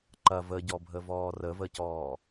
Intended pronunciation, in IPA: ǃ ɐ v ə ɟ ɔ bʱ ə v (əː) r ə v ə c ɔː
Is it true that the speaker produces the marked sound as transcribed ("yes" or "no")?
no